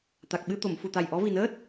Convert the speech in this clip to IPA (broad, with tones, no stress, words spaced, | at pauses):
t̪a˨˩k̚ ɓɨ˧t̪o˨˩˨m fu˨˩t̪a˨˩jʔɔ˧˥ vi˨˩nəː˦˥t̚